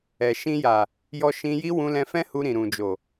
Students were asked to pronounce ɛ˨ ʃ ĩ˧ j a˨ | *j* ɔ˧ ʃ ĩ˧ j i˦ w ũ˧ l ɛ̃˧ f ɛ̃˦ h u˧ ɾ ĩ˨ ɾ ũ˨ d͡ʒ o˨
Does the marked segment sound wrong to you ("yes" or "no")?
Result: no